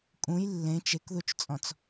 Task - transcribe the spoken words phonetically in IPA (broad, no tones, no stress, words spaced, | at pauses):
kʼũj lːẽ t͡ʃekðut͡ʃt͡sʼɔ̃t͡s